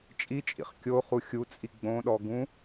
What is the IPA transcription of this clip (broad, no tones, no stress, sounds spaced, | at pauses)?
t͡ʃʼ i t͡ʃʼ ḭ χ kʲ o χ u xʲ u t͡sʼ i ɡ͡b õ ɗ ɔ ɡ ũ